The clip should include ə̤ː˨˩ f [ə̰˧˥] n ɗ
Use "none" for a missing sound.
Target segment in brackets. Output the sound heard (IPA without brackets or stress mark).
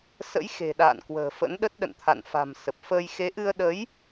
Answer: ə̰˧˥